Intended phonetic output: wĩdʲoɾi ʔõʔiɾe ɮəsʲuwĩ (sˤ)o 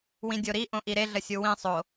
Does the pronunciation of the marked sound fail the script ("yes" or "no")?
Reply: no